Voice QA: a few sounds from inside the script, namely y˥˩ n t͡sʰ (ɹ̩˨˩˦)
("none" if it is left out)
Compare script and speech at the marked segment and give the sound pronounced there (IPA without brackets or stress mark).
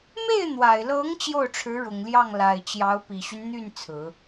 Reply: ɹ̩˨˩˦